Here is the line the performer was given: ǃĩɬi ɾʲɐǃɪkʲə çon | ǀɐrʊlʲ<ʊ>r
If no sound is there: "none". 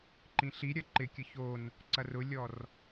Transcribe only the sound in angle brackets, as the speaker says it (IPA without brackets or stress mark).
ɔ